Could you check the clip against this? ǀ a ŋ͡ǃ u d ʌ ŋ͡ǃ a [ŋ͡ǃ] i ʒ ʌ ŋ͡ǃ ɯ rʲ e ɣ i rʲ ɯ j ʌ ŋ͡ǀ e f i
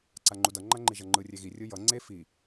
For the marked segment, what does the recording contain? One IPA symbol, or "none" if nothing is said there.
ŋ͡ǃ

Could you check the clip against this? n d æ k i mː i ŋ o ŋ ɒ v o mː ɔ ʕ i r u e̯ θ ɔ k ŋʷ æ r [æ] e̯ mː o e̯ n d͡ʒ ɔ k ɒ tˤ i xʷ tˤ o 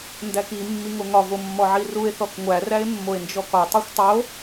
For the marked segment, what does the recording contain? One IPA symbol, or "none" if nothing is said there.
æ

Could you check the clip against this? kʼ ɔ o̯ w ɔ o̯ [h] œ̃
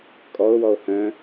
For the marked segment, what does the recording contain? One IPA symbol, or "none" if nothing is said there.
h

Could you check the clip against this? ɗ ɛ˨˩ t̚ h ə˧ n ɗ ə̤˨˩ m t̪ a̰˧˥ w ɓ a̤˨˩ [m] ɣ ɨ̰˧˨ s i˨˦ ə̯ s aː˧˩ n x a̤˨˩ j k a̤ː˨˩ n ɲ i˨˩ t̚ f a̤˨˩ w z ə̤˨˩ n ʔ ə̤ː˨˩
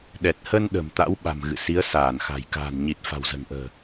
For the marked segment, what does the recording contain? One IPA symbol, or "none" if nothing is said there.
m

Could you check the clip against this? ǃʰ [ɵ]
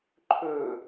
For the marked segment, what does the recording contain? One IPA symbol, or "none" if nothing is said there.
ɵ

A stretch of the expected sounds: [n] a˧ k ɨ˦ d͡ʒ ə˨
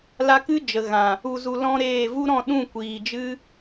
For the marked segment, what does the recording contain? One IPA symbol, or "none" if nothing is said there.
l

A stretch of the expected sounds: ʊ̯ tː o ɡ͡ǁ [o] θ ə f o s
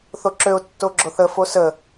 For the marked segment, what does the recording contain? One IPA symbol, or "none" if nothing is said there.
o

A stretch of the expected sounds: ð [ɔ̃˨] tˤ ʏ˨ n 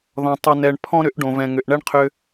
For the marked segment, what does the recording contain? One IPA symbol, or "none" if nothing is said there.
ɔ̃˨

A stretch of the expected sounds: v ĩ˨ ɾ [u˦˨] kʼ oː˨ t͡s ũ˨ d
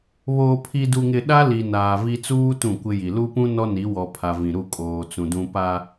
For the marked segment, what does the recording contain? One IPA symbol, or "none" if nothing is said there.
u˦˨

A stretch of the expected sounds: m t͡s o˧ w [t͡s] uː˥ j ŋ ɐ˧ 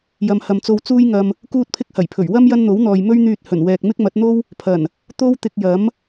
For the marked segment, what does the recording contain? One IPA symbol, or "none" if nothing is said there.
t͡s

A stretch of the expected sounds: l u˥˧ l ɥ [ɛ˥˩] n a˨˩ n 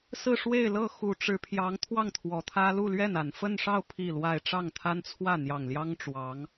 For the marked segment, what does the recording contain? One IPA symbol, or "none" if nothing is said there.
ɛ˥˩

